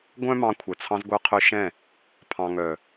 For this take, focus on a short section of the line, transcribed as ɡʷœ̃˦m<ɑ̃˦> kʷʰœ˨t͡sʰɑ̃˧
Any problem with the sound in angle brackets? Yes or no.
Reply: yes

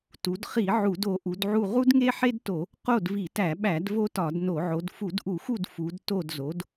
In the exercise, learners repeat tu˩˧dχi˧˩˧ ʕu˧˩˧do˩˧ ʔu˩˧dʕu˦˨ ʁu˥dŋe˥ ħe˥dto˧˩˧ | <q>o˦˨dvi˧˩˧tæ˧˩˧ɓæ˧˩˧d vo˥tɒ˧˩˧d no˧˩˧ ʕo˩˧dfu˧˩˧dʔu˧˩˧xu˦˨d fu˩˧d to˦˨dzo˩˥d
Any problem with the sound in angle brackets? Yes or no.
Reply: no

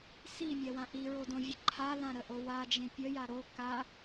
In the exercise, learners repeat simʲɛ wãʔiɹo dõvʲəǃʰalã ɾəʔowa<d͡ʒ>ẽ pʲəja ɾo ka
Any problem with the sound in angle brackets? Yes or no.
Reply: no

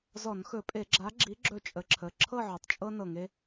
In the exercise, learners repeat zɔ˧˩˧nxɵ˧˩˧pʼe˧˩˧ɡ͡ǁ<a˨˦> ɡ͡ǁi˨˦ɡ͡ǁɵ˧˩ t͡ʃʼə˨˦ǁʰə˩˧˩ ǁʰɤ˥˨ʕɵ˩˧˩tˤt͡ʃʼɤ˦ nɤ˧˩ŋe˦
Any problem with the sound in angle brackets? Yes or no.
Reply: no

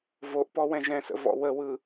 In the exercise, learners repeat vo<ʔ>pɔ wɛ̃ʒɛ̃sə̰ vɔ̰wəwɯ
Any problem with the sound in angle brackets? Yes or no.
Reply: no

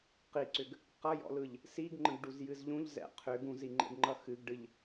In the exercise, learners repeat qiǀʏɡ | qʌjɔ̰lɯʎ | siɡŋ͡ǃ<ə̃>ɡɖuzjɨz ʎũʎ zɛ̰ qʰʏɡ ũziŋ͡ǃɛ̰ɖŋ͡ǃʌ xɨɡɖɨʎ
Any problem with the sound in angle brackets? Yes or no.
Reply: no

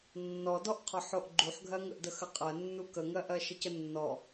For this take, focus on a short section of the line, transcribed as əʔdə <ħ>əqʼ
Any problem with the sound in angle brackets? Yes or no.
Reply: yes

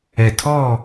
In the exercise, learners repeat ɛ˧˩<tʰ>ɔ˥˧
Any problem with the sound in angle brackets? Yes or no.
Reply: no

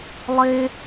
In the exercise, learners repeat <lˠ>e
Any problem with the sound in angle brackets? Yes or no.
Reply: no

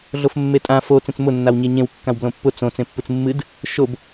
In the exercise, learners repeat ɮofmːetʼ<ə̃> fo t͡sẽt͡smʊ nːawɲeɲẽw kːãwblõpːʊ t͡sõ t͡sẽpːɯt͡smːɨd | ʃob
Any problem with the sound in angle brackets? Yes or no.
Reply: yes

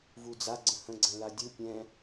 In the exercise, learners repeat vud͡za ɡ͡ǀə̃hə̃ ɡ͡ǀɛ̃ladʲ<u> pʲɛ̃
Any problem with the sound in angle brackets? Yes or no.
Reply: no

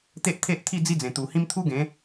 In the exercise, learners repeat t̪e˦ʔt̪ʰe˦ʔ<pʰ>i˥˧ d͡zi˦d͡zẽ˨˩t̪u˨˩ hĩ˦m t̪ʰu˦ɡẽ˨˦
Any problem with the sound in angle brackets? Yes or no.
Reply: yes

